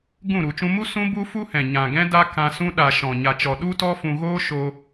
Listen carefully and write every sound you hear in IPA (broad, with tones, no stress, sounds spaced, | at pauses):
ɡ ũ˦˨ ɾ u˨ t͡ʃ ũ˧ m u˦ s ũ˦ b u˦ f u˦ h ɛ̃˨ ɲ ã˨ ɡ ɛ̃˦ d a˦ k ã˧ s ũ˦ ɗ a˨ ʃ ɔ̃˨ ɲ a˨ t͡ʃ ɔ˨ ɗ u˦ t ɔ˦ f ũ˧ ɣ oː˦ ʃ o˧